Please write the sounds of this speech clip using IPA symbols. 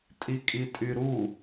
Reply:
tʼikʼitʼyɾu

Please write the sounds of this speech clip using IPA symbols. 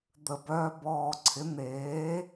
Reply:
d̪ə˨˩bœː˧bɔː˨˩ǀʰɪ˩˥ n̪eː˩˥

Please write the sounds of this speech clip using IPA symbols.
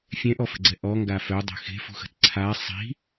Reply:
fʲɛ̃ʔɔfə̤ɡ͡ǀɛ ʔɔ ŋɡafœdˤə̤ xe̤fṳxə̤t ǀʰa sˤi̤

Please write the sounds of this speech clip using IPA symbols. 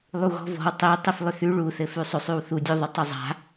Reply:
lˠuɣɔ̤vɔ̤w tˤi tˤiflˠʏθʉ ɭu θɘfʉsˤʏ sˤʉwθudʲu ðˤutˤuzˤa̤

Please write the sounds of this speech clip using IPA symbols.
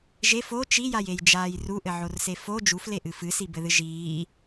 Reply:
ʒef o t͡ʃijajejd͡ʒaːj ruʔɘʕorse fo d͡ʒufleʔɨ fɨsibɘðɨ ʒiː

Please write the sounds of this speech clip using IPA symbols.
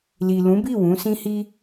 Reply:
li˨lũ˨˦bi˦˨ wũ˨˦sĩ˦hi˦

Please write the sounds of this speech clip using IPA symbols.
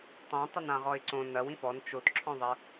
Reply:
tˤõ tˤɘnãʁɔɪ̯ǀõ nɐw ĩfɔn t͡ʃotǁʰɔ̃ðˤɐ

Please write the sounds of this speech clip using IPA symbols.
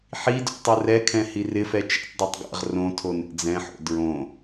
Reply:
ħidṵ tˤurɛkʰɛ̃ hirɪfɛ t͡ʃɛ̰tdˤetˤ ɡa̰ʁ rõtʰo nɛ̰d͡zɛ̃ħo̰ dɹõ

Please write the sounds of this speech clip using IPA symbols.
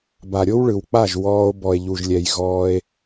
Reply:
ba˨ɾʲo˦wɭɯ˨wk͡pa˦˨ʒ wɔː˧o̯ bɔ˨e̯ʎu˨ʒlʲɛ˨j ɣɔː˧e̯

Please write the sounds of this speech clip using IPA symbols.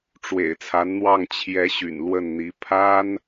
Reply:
ʈ͡ʂwḛ˨˩ɪ̯ t͡sʰa˧˥nn̪wɑ˥˩ŋ t͡ɕʰjɛ˧˥ ɕy̰˨˩nlwə˥˩nn̪i˧˥ pʰa˥n

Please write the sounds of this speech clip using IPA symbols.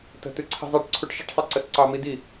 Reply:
tə̤t ɨǀʰi̤zˤɛʈ ǀʰuʈʃəʈsˤɛ ǀəsǀɑmidi

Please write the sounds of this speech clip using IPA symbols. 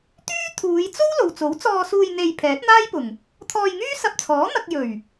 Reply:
t̪yː˥ t̪ʰuː˨˧jt͡so˥w lo˨wt͡so˨˥wt͡sɔː˧suː˧j n̪e˧j pʰɛː˨˥t̚n̪aː˥jpʊ˨˩ŋ | t̪ʰɔː˧jŋyː˥ sɐ˧p̚t͡sʰɔː˨˥n̪ɐ˧k̚ jɵ˨˩ɥ

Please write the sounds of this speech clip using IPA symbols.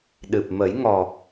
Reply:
ɗɨ˨˩p̚mə˨˩˦jŋɔ˨˩

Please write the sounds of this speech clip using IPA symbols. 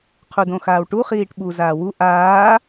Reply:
qʰudõxaːwʈu χiːʈɓu zaːwu ʔaː

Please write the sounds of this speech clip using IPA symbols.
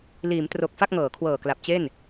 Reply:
liː˩˦mtro˨˩k̚ fa˥˩k̚ŋɤː˩˦kʰwɤː˨˩ kla˨˩p̚t͡ɕe˥˩n

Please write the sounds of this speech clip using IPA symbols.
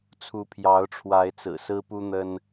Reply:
t͡sʰu˨˦pʰjɑ˨˦ʊ̯ʈ͡ʂʰwa˨˦ɪ̯t͡sɹ̩˨˩ sɹ̩˦pu˦n̪ə˦n

